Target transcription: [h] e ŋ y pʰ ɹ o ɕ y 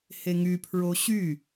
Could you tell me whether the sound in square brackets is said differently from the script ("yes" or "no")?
no